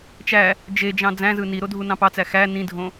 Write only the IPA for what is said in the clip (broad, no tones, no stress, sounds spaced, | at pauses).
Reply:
t͡ʃ æ | d͡ʒ e d͡ʒ ɑ̃ d͡z æ̃ z ɯ n i ɾ o dʱ u n ɑ̃ p ɑ t͡s æ x æ n ĩ dʱ õ